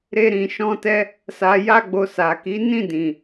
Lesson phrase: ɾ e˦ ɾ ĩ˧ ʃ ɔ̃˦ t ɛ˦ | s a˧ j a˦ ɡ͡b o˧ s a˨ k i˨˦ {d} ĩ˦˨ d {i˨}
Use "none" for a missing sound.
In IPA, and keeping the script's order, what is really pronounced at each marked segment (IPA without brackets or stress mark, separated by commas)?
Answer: n, ĩ˨